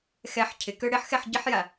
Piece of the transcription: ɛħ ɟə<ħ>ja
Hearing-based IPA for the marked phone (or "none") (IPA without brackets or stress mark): ħ